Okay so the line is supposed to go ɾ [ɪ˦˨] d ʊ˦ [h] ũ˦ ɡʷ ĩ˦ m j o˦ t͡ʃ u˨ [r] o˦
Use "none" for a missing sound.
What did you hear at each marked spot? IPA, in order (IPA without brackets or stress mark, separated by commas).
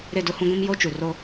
ɪ˦˨, h, r